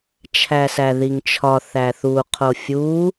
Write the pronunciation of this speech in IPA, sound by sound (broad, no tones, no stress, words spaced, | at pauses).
t͡ʃʰæsæðiŋt͡ʃʰɒ θæθu qʰofʲu